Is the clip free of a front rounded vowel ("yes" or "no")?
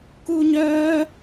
no